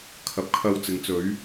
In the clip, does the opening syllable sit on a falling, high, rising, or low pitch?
rising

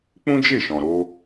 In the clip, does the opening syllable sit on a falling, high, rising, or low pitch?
high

